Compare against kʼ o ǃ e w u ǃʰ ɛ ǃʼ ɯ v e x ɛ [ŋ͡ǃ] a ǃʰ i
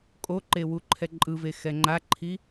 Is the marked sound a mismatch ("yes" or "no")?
no